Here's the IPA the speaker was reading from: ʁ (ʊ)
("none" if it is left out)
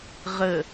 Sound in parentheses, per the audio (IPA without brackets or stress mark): ə